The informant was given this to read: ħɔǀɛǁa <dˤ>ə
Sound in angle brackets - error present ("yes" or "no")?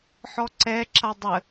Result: no